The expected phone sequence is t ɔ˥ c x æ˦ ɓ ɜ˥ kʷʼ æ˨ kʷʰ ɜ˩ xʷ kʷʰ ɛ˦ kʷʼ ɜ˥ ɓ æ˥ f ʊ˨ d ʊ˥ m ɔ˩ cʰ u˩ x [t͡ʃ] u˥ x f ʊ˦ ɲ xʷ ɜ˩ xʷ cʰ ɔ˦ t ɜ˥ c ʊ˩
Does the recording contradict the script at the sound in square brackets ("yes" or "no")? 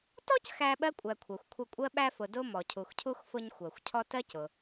yes